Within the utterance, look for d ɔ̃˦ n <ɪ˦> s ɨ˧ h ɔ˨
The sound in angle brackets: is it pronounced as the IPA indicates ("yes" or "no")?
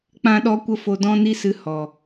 no